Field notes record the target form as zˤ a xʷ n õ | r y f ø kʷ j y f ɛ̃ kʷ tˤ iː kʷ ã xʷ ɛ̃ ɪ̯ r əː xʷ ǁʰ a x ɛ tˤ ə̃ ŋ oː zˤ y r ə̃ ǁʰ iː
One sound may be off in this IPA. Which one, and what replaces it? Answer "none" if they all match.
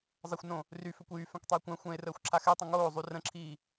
none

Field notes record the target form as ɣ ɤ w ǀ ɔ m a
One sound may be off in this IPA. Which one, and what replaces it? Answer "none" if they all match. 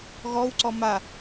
ɤ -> ɔ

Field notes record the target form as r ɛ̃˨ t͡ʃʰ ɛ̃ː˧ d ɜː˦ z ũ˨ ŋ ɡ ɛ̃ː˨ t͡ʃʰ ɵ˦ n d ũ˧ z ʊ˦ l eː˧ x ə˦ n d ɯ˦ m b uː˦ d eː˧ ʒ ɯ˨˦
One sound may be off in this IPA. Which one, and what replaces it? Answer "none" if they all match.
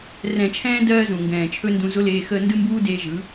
none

